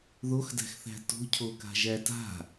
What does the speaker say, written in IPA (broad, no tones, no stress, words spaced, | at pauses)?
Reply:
ðoxdæ̤xθæ̤ to̤cʰoka̤ʒæ ta̤